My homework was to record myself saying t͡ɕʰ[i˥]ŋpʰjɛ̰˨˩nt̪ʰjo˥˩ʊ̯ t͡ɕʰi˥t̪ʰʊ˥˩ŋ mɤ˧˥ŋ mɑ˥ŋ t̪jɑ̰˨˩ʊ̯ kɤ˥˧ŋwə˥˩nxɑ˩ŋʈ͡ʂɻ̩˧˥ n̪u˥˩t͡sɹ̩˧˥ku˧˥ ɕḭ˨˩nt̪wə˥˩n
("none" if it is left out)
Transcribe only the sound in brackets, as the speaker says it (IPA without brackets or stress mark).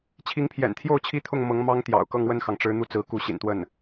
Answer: i˧˥